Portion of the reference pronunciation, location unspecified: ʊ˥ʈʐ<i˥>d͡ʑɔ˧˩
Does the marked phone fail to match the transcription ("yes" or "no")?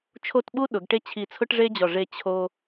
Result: yes